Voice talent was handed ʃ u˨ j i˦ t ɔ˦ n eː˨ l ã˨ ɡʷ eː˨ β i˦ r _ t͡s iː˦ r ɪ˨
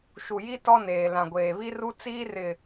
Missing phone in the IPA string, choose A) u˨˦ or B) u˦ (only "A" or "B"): B